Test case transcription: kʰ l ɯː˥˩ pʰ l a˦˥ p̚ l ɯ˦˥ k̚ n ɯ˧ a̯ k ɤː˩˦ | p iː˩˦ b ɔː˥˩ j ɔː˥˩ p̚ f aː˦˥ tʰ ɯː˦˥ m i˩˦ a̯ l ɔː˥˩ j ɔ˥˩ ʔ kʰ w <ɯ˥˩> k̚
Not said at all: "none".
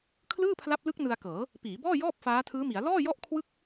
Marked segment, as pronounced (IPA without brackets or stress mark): ɯ˥˩